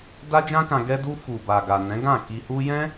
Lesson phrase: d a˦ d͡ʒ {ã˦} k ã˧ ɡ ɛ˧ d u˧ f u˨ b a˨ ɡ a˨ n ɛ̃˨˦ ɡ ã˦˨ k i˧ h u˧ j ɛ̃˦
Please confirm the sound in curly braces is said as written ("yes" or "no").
yes